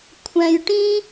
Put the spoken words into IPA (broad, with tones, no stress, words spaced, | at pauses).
kʷʰɛ̃˧jʈĩ˦